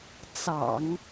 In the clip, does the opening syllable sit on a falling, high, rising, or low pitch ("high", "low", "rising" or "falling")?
low